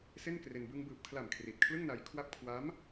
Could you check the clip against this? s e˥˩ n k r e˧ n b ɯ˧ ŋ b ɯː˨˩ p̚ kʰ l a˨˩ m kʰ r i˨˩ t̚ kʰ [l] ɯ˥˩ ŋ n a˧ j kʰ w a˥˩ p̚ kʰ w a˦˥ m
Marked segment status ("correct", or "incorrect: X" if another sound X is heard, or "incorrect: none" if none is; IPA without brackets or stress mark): correct